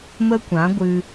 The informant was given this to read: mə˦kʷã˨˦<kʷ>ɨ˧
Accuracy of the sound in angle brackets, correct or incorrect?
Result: incorrect